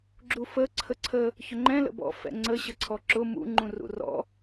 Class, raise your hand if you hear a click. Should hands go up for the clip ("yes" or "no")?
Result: yes